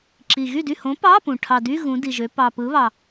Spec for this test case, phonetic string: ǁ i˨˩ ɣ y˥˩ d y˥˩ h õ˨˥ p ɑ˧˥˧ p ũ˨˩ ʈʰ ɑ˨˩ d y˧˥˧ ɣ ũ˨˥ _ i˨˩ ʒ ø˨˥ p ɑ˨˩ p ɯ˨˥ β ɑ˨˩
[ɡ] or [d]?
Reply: d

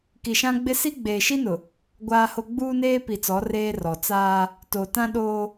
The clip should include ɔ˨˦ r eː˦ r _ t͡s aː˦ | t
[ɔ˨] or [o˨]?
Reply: ɔ˨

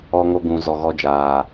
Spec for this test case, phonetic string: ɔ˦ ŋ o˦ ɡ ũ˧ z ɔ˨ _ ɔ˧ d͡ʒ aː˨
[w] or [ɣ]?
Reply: ɣ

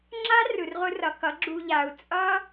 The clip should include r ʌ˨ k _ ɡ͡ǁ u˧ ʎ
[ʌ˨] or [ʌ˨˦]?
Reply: ʌ˨˦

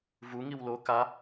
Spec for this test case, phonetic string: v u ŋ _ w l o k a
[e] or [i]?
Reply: i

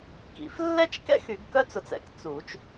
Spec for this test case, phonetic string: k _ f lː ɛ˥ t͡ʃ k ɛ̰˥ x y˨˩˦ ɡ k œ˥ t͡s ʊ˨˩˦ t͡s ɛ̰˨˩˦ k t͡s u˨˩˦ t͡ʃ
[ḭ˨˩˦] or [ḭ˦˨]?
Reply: ḭ˨˩˦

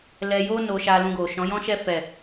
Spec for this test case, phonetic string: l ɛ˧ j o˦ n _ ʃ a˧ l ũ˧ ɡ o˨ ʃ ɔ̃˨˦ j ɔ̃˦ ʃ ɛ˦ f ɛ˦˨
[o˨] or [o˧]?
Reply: o˧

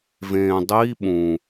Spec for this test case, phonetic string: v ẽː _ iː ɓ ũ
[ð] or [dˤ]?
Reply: dˤ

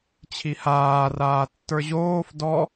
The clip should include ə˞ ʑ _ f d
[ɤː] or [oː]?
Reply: oː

